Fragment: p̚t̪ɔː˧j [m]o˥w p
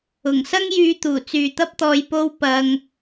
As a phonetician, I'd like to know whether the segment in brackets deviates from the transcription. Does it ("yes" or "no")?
yes